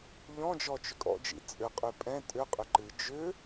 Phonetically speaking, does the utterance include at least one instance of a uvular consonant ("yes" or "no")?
yes